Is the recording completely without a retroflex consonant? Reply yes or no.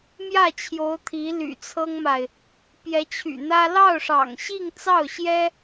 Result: no